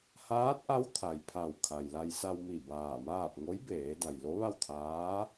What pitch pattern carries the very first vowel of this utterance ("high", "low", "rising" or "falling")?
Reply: rising